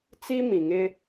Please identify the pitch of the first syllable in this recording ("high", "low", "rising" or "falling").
high